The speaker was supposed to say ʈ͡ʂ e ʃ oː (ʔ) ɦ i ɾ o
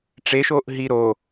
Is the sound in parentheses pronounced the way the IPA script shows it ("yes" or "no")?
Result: yes